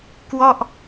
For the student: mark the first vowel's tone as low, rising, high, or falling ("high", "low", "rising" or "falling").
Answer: falling